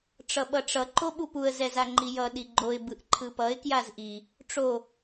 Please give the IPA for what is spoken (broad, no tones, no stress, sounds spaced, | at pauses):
ʈ͡ʂ ʌ ɓ ʌ ʈ͡ʂ ʌ ǃ o ɓ u p u ə̯ z ɛ z a ŋ͡ǃ i j ʌ ɗ i ɡ͡ǃ o ɪ̯ b ɯ ʔ ǃʰ ɯ p ʌ ɪ̯ k j a z ʔ i | ʈ͡ʂ o